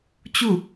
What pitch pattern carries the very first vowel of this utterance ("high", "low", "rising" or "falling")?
falling